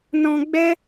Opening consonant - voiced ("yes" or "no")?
yes